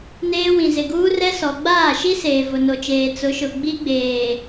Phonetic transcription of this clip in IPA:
n eː˦ w ĩ˨ z ɪ˨ ɡ uː˦ r ɛ˦ s ɔ˨ ɡ͡b aː˦˨ ʃ i˦ s eː˨ v ʊ˨ n o˨ t͡ʃ eː˨ t͡s ʊ˨˦ ʃ ʊ˨ ɡ͡b i˦ ɡ͡b eː˨

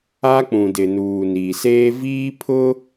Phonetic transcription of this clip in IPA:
a˦ k͡p ũ˨ d ɪ˨ n uː˨ n iː˨ s eː˦ v iː˦ pʰ ʊ˦

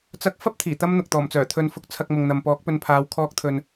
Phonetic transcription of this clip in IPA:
t͡s ɐ˥ k̚ f ɐ˥ p̚ t̪ʰ iː˨˩ t̪ ɐ˥ m n̪ ʊ˨ k̚ t̪ ɔː˨˩ m t͡s œː˨˩ t̪ʰ ɵ˧ n f ʊ˧ k̚ t͡sʰ ɐ˧ k̚ m ʊ˨ ŋ n̪ ɐ˨ m p ɔː˨˥ k̚ p ɵ˧ n pʰ aː˨˧ w kʰ ɔː˧ k̚ t̪ʰ ɵ˨ n

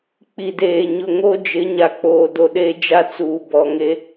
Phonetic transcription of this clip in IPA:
k͡p i˨ d eː˨ ɲ ʊ˨ ŋ o˦ d͡ʒ ɪ˨˦ ɲ a˨ k͡p oː˨ d o˨ ɗ e˦ d͡ʒ a˦ t͡s uː˨ b ɔ˨ ŋ e˦

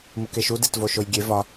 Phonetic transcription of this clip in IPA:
m u k e ʃ u d e t v o ʃ o j ɡʲ e v ɒ

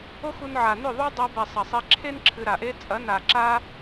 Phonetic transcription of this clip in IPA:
o˦ x u˧ n ʕ a˨ n ʏ˦˨ ðˤ u˦ dˤ a˧ b ɛ˨ sˤ ɐ˨ sˤ e˧ ǁʰ e˦ n ǁʰ ɨ˧ ɾ a˨ ʔ e˦ t͡sʼ ɐ˨˦ n a˨ ǁ a˦

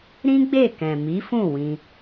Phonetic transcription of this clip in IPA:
ɾ ĩ˦ ɡ͡b e˦˨ k ɛ̃˨ m i˨˦ f ũ˦˨ w ĩ˧

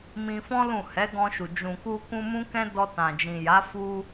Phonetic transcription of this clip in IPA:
m ĩ˧ f ɔ̃˦ l ũ˦˨ h ɛ˨˦ ɡ ɔ̃˧ ʃ u˨ d͡ʒ ũ˨ k u˧ k ũ˧ m ũ˦ k ɛ̃˦ d ɔ˧ t ã˨ d͡ʒ ĩ˨ j a˨˦ f u˧

